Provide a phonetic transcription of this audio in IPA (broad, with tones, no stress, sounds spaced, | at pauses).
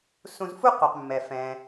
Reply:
s ũ˧ z f u˥ q o˩ q mː ɛ˩ f ɛ̃˩